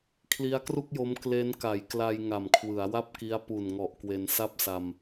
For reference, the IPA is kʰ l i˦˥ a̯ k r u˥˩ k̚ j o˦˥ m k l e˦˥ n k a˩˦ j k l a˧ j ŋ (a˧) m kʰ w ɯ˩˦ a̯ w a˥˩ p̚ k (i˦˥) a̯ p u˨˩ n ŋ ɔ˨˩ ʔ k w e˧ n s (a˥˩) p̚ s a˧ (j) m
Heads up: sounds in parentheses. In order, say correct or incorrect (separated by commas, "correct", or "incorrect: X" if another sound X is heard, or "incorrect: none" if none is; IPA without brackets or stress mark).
incorrect: a˨˩, correct, correct, incorrect: none